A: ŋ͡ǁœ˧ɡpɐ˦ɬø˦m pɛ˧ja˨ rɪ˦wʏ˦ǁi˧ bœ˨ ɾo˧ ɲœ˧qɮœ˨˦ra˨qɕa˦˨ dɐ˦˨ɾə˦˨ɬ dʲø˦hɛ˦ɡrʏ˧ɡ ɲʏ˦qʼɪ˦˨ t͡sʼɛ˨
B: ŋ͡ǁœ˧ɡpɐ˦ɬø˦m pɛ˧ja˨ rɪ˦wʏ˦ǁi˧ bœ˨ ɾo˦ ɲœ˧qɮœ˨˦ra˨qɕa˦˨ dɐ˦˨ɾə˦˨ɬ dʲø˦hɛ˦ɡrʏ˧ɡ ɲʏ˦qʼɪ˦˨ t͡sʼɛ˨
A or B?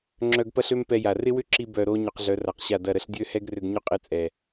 B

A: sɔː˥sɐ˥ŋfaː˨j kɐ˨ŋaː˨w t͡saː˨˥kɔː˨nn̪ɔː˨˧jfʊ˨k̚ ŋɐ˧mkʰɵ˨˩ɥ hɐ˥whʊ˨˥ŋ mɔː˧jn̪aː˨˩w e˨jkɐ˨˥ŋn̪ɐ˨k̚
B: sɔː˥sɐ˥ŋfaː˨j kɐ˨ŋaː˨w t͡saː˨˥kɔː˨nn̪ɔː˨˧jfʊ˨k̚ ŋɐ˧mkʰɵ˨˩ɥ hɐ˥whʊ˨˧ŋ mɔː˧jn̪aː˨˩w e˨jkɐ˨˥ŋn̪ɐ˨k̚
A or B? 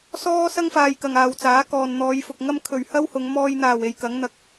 B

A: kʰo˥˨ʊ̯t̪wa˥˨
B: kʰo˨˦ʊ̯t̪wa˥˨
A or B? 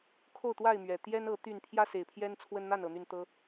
A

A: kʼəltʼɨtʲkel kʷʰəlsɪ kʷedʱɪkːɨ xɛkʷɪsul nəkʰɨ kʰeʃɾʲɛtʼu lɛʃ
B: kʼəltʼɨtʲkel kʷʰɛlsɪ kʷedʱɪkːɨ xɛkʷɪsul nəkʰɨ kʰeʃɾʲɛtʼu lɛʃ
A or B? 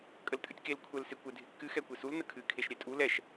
B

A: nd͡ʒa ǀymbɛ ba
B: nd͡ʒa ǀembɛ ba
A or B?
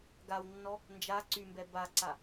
A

